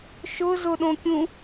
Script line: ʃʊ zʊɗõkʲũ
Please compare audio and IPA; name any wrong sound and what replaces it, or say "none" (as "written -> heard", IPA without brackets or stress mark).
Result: none